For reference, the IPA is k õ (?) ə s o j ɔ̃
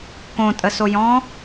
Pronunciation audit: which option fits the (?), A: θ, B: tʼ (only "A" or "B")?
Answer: B